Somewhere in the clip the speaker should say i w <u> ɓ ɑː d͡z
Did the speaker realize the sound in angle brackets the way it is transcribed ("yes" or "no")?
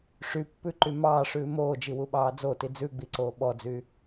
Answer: yes